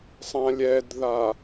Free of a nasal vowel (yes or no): no